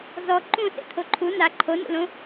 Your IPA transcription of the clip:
z ɔ ǃ ũ s ḛ t̪ʰ o ǃʰ u n a ǃʰ o n ṵ l õ

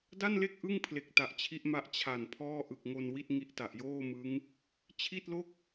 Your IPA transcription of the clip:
d a˥˩ n l e˥˩ k̚ ʔ ɯ˥˩ ŋ pʰ l e˨˩ k̚ t a˨˩ ʔ t͡ɕʰ i˦˥ ʔ m a˦˥ ʔ t͡ɕʰ a˨˩ n pʰ ɔː˥˩ ʔ ɯ˨˩ k̚ ŋ o˧ n w i˥˩ t̚ ŋ i˦˥ ʔ t a˨˩ ʔ j oː˥˩ m ɯ˦˥ ŋ | t͡ɕʰ i˥˩ t̚ l o˥˩ k̚

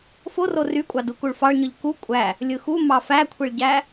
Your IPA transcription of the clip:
f o r o r y kʷʼ ɑ d u k u ɭ f ɑ ɭ ɲ ɯ ʎ k u kʷʼ æ | lʲ ɯ x u m ɑ f æ kʷʰ i ɭ ɟ æ

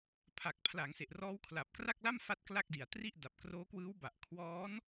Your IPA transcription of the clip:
pʰ a˨˩ k̚ pʰ l a˩˦ ŋ s e˨˩ ʔ r ɔː˦˥ w kʰ l a˨˩ p̚ k r a˥˩ k̚ l a˥˩ m f a˦˥ t̚ k l a˥˩ k̚ d i˨˩ a̯ t r i˥˩ ʔ d a˨˩ p̚ k r oː˦˥ k w ɯː˦˥ w b a˨˩ ʔ kʰ w ɔː˦˥ n

